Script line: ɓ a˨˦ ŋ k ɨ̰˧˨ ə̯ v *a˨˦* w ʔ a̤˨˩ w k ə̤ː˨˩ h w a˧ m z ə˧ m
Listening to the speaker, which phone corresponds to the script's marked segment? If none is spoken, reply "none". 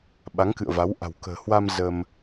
a˨˦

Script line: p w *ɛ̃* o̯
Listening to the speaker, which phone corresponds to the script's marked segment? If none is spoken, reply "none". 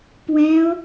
ɛ̃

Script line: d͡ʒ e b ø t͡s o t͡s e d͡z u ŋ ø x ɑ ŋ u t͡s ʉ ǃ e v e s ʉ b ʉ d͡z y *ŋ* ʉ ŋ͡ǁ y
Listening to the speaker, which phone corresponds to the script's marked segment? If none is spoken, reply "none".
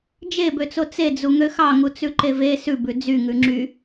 ŋ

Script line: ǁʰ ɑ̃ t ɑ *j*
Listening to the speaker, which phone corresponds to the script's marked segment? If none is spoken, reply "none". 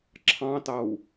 w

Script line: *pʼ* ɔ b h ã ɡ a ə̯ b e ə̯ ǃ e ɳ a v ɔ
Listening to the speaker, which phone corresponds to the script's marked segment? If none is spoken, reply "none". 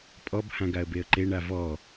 pʼ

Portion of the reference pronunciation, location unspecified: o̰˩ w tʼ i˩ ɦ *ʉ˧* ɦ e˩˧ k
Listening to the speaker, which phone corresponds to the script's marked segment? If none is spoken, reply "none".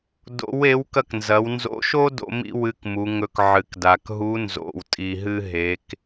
ɨ˧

